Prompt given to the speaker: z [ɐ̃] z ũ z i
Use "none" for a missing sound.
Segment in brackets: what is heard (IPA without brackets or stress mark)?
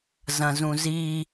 ɐ̃